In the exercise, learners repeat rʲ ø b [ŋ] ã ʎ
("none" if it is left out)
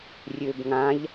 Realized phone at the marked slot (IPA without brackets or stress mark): ŋ